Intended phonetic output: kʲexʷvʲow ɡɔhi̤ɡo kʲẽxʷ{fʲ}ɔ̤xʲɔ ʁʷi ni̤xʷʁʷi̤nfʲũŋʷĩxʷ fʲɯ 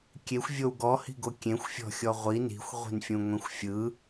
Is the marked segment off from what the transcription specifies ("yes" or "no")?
no